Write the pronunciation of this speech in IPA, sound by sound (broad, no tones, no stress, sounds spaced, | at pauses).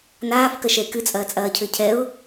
n aː f k ɐ ʃ ɛ ɪ̯ k ɨ t͡sʼ ɐː t͡sʼ ɐː cʰ ɘ cʰ ɛ ʊ̯